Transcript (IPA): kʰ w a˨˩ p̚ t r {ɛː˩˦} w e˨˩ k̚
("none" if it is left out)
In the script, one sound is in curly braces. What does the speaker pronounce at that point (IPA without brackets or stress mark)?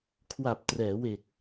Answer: ɛː˩˦